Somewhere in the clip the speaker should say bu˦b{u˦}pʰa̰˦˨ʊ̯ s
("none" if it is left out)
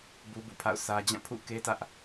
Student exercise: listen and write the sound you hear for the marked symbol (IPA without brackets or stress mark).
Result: ṵ˦˨